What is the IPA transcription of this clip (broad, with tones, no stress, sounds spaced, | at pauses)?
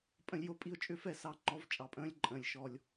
pʼ ə̃˦˥ lʲ j o˦˥ pʼ i˦˨ ʊ̯ t͡ʃʼ ʏ˦˥ f ɛ˦˨ s ɑ˦˨ ŋ͡ǃ ɔ˦˥ v t͡ʃʼ ɑ˧˩˧ pʼ ə̃ː˦˥ lʲ ǃʼ ə̃ː˩˧˩ lʲ ʃ ɔ˦˨ lʲ